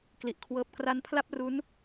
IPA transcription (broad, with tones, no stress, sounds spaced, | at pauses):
k l i˨˩ ʔ kʰ w ɤː˦˥ p̚ k r a˦˥ n pʰ l a˥˩ p̚ r u˦˥ n